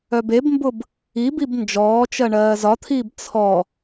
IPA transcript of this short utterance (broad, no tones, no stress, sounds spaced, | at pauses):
œ b e b m b ʊ b | i b i b n d͡ʒ ɔː t͡ʃ ɜ ɳ ɜː z ɒ t̪ʰ iː b t͡sʰ ɔ